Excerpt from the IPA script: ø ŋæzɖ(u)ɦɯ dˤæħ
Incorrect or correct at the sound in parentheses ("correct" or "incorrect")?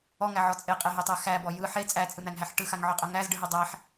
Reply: incorrect